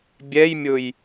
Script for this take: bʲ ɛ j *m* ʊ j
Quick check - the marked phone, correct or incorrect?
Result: incorrect: mʲ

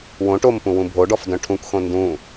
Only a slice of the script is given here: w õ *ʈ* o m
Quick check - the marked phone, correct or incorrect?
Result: correct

